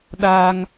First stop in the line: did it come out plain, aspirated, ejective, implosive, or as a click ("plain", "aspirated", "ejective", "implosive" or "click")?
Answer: implosive